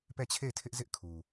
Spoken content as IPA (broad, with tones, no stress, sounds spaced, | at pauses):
p ɛ˦˨ t͡ɕʰ e˦˨ ɪ̯ tʰ ɪ˦ ʔ z ɪ˦ ʔ kʰ u˨